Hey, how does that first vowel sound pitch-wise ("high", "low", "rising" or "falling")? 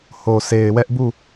low